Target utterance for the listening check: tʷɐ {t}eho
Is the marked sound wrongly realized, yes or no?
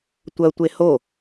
yes